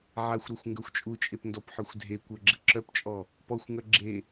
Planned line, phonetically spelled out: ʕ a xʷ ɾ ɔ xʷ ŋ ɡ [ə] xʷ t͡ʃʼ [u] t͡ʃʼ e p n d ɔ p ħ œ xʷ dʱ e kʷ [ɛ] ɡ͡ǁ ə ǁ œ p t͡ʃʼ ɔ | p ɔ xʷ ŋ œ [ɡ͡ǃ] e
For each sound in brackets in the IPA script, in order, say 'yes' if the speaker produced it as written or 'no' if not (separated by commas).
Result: no, yes, no, no